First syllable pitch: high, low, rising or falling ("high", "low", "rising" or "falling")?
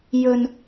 high